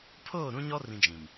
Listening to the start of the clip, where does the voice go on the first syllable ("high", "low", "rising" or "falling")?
falling